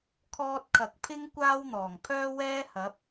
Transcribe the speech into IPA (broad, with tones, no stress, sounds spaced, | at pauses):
kʰ ɔː˥ t̚ kʰ ɐ˨ k̚ pʰ ɪ˥ ŋ kʷ aː˥ w n̪ ɔː˨˩ ŋ pʰ œː˥ w ɛː˥ h ɐ˨˥ p̚